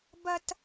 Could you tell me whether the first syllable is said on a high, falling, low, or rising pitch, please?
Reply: high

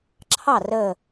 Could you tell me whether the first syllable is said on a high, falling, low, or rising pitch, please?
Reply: falling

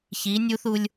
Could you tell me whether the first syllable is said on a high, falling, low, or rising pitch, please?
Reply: rising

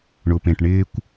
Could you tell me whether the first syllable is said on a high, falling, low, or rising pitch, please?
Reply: low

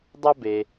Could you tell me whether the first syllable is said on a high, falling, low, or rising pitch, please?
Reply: high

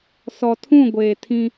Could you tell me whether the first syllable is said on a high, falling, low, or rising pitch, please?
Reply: low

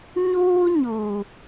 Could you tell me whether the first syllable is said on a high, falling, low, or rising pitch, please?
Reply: high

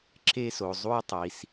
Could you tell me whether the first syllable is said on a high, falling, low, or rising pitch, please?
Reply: high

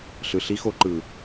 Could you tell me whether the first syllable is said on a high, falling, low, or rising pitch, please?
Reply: low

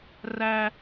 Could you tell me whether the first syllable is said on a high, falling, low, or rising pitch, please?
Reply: high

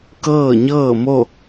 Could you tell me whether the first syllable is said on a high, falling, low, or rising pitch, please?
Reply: falling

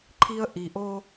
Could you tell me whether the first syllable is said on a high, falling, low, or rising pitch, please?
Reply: high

